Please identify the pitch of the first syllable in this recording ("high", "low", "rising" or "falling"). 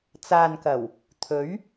low